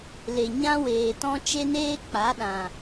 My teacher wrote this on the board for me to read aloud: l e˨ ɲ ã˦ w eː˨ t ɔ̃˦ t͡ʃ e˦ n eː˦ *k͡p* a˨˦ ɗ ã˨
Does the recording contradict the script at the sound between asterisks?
no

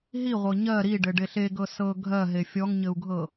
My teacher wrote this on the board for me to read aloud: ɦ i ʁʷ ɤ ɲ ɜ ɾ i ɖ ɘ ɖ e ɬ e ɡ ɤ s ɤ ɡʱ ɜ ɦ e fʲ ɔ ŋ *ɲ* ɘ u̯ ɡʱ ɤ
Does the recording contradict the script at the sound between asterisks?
no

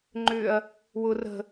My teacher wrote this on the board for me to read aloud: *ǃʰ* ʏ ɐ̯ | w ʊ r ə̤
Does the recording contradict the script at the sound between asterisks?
yes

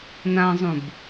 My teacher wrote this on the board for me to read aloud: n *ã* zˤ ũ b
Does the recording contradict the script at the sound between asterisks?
no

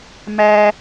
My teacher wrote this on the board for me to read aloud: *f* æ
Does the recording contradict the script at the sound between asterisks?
yes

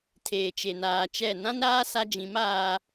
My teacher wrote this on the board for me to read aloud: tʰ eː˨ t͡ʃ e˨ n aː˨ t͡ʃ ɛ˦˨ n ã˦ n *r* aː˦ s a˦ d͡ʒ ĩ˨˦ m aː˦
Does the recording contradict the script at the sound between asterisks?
yes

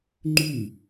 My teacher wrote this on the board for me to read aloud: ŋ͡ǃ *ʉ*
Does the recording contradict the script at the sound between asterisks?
no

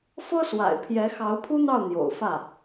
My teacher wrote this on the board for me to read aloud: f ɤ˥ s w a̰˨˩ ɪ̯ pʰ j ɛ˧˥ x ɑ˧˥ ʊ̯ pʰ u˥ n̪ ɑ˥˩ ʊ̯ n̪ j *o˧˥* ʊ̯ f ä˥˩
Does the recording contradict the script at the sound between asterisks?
yes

